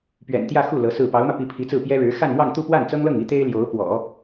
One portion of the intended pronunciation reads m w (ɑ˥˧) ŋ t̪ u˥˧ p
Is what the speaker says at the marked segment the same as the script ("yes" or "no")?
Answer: yes